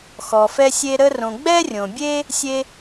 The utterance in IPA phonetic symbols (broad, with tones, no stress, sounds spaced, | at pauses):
x ɔ˩ f ɛ˧ sʲ e˧ ɾ ə˧ r õ˩ ɡ͡b ɛ˥ rʲ õ˩ bʲ e˥ | sʲ e˧